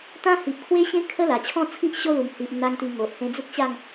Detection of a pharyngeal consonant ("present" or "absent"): absent